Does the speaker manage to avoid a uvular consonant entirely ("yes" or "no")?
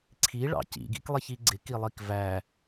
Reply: yes